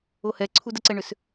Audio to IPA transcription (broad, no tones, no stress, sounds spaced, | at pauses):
o h ɛ ǀʰ u d ə ǀ ɛ ɳ ʏ s